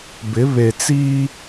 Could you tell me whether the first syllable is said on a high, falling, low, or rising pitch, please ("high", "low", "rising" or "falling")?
rising